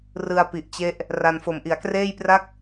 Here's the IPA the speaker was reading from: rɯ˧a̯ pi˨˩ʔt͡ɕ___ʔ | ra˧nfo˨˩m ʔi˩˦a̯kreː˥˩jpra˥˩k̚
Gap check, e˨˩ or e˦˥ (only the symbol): e˦˥